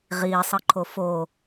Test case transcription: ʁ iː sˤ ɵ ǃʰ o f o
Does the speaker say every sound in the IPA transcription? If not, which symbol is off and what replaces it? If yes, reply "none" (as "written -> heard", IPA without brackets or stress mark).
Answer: ɵ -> ɤ